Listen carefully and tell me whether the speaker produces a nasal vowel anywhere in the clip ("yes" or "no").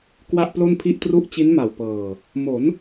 no